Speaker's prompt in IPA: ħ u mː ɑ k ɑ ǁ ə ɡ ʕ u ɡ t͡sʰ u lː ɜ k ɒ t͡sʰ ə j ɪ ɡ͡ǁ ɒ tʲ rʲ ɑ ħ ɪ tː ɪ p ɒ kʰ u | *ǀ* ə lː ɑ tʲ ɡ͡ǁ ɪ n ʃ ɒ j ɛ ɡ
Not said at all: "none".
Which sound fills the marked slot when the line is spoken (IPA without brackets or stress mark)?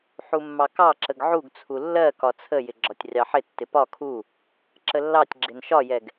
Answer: ǁ